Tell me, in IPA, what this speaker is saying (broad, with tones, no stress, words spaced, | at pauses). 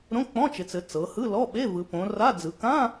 ɾõ˧˥˧k͡pɔ̃˧˥˧t͡ʃɪ˩˧t͡sɘ˩˧ t͡sɤ˩˧hɯ˧˥˧lɔ˧˥˧ ɓe˧˥˧ vɯ˩˧põ˩˧ra˧˥˧d͡zɯ˩˧ kã˧˥˧